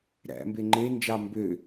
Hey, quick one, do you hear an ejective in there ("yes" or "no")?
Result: no